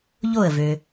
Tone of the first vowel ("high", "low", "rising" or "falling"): falling